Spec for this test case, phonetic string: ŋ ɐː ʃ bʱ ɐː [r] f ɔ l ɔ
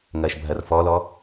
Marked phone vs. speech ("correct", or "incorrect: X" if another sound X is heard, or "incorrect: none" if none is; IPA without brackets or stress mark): correct